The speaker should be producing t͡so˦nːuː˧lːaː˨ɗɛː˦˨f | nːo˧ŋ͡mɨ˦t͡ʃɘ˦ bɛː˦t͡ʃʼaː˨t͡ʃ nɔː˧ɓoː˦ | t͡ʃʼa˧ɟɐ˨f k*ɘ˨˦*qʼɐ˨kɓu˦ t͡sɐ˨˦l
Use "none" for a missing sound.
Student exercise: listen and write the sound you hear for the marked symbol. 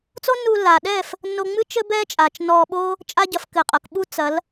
ɘ˨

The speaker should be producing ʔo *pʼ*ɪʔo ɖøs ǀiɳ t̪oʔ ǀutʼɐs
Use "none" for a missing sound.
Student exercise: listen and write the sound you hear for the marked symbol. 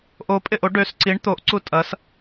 pʼ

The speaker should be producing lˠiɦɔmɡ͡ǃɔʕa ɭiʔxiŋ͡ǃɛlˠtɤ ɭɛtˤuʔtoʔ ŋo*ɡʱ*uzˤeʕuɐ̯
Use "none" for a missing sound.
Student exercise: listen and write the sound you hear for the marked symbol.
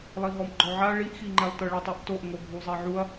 ɡʱ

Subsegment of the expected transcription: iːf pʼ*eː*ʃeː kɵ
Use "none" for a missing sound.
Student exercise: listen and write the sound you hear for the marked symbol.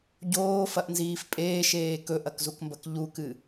eː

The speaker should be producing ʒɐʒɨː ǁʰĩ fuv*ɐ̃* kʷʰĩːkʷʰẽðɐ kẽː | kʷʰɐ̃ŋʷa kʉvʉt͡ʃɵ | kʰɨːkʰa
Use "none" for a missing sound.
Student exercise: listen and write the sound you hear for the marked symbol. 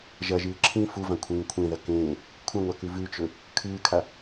ã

